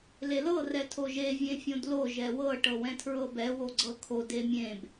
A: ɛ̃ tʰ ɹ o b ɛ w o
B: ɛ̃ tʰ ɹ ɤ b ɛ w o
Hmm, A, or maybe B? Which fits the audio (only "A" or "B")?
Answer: B